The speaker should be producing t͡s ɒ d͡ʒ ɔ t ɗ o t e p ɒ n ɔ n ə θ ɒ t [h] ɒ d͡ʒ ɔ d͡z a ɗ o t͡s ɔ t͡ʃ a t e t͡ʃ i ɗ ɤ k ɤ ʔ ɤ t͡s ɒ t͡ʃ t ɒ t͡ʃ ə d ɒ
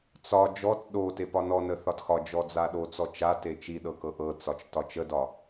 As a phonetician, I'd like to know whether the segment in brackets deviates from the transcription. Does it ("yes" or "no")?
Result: yes